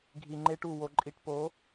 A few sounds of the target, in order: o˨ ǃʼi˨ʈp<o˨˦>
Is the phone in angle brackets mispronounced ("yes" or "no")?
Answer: no